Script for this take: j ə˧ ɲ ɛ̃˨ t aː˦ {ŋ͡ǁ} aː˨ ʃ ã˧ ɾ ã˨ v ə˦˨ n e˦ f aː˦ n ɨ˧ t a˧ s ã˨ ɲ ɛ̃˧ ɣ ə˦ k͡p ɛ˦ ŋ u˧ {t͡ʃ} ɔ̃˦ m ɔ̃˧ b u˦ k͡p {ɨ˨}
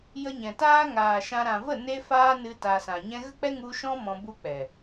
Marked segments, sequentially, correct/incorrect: incorrect, incorrect, incorrect

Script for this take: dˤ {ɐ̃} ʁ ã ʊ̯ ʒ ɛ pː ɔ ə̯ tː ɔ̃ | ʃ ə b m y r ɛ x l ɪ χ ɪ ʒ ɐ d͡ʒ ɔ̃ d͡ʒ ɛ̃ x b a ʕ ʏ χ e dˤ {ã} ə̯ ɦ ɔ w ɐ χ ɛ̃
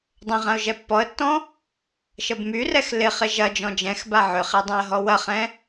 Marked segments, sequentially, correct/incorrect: correct, correct

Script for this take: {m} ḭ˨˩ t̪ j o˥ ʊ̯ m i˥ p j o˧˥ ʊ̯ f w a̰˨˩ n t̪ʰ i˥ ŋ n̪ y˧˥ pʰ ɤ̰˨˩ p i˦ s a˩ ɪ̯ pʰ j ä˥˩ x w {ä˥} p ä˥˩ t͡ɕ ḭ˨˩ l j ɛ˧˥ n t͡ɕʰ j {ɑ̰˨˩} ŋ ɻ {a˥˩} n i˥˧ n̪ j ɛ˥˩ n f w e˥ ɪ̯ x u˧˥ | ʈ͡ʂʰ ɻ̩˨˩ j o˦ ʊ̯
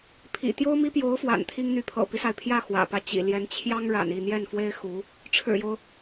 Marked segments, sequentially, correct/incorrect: incorrect, incorrect, incorrect, incorrect

